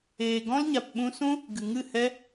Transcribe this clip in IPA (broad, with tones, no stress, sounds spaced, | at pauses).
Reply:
eː˨ ɡ ɔ̃˦ l ɲ a˨ p ɓ ũ˧ s ũ˦ | ɡ ɨ˨ ŋ ɨ˦˨ h ɛ˦